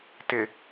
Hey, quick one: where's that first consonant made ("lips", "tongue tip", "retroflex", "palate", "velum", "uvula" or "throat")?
tongue tip